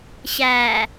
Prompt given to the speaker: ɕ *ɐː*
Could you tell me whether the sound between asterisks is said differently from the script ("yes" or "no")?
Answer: yes